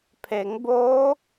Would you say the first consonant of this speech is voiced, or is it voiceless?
voiceless